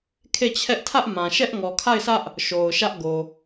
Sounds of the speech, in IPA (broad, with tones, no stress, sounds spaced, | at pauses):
kʰ e˦˨ t͡ɕʰ ɛ˦ ʔ tʰ ä˦ ʔ m ã˨ ʃ ɛ˦ ʔ ŋ ɔ˨ kʰ a˦˨ ɪ̯ sʰ ä˦ ʔ | ʃ o˨ ʊ̯ ʃ ä˦ ʔ ɡ o˨